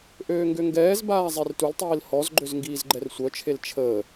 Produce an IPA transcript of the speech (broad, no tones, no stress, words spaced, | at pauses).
ʔøːŋɡøŋɡɛːzbaː zˤertultˤiːl hɔzɡ͡ǃøz ŋɡiːzɡ͡ǃɛrsʷœt͡ʃʰel t͡ʃʰəː